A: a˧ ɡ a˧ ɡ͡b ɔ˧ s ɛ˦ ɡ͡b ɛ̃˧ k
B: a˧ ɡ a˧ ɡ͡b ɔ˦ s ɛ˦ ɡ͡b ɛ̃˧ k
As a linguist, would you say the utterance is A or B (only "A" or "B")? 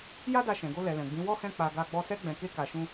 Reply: A